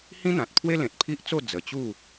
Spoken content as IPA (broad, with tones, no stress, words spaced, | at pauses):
hĩ˦n̪ã˨t̚pʰwe˦ lẽ˨t̚pʰi˦ʔt͡so˥˧ d͡zə˨˩t͡ɕu˥˧